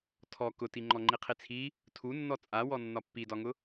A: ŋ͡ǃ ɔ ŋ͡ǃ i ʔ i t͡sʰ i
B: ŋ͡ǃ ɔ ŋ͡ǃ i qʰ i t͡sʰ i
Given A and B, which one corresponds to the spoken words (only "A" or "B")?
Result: B